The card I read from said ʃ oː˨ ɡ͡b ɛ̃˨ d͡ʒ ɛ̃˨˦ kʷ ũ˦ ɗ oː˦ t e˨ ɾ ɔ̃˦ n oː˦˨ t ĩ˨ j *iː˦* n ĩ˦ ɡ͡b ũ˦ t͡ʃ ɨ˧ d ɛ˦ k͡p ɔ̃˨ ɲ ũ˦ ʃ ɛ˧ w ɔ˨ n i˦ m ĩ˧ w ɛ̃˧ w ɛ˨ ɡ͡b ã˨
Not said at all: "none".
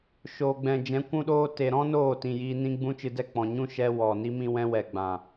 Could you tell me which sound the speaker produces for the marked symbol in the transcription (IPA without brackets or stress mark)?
iː˧